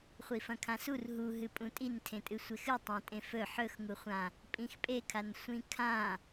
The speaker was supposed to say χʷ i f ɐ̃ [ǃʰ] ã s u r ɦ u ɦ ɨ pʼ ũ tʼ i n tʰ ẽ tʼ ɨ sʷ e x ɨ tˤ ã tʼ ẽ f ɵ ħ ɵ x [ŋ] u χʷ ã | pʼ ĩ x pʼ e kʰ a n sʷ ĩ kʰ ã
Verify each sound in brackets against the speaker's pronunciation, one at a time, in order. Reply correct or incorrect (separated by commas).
incorrect, correct